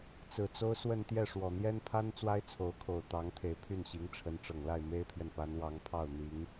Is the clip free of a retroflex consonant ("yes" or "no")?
no